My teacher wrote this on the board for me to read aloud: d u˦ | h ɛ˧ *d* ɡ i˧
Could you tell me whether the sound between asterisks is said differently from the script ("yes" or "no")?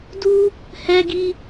yes